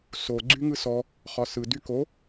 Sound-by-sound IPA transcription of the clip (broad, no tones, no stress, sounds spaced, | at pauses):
s o ɡ͡ǀ y ŋ ɯ s ɔ | χ ɒ s ɯ d y k o